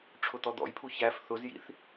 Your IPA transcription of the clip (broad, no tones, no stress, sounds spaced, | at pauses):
ʈ͡ʂʰ ʊ t̪ ɔ d̪ ɔ̰ j pʰ u ç æ f θ ʊ z j ḭ θ